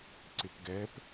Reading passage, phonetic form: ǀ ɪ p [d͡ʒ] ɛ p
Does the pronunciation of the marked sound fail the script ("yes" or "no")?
yes